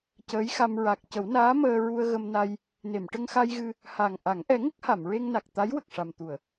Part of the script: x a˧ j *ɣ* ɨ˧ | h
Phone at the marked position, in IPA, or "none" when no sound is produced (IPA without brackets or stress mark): ɣ